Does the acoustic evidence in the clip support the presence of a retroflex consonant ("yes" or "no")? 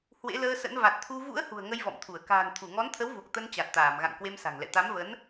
no